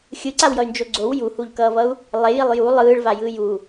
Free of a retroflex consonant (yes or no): no